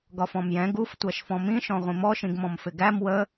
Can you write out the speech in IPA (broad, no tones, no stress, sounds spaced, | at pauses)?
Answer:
ɡ ɒ f ɔ̃ m j ɛ̃ ɡ u f tʷ æ ʃ f ɔ̃ m ĩ ʃ ɔ̃ ʁʷ ĩ m ɔ ʃ ĩ ɡ m ɔ̃ m f ɪ ɡ æ m w ə